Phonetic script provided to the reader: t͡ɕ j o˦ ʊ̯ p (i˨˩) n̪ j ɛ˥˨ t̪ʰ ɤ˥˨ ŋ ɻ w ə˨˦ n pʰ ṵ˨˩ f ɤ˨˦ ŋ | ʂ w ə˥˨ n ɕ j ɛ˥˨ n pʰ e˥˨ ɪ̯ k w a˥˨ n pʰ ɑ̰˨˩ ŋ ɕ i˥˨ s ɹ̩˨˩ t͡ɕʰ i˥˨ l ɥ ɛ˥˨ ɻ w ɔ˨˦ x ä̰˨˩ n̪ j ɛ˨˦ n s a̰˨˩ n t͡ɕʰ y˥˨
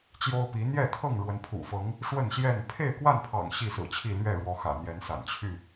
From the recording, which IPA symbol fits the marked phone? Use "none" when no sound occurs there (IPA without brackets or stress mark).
i˨˦